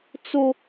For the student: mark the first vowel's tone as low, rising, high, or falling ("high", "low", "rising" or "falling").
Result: high